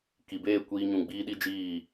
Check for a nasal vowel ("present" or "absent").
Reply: present